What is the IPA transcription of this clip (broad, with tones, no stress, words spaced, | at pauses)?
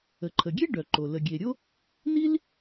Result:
ə˩ǃʰə˩ɡʲe˥ ɖœ˩ ǃo˩ lə˩ɡʲe˩ɾʲo˥ | ni˥l